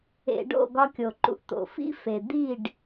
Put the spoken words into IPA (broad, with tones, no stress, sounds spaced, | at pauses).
ḛ˧ ɖ o̰˦˨ ɡ ɒ˧ kʲ o˨ ǃ ṵ˧ ʔ t̪ o̰˨ f ḭ˦ f e˨ d̪ i˦˨ ɖ